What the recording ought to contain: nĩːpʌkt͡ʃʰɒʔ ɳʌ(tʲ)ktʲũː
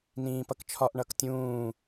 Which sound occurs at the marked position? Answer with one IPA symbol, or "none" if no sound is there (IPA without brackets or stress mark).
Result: none